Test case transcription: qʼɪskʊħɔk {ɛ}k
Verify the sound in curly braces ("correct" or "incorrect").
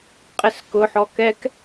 correct